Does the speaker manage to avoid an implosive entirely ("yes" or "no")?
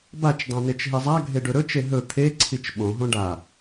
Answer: no